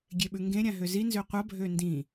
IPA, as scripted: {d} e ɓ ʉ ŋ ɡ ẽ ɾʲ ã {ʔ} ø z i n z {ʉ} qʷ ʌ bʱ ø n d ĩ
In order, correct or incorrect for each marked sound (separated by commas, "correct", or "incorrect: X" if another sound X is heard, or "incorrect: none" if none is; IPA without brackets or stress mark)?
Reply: incorrect: ɡʲ, incorrect: ɦ, incorrect: ø